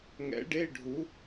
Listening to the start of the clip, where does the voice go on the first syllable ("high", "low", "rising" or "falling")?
rising